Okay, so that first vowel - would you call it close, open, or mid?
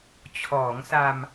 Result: mid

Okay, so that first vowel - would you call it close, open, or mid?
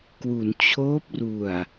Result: close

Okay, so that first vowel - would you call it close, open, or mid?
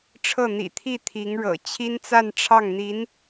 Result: mid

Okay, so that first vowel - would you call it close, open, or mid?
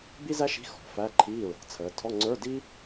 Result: close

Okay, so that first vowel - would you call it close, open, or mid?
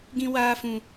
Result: close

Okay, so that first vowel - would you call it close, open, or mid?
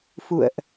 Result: close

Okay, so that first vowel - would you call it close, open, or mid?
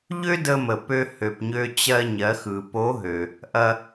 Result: mid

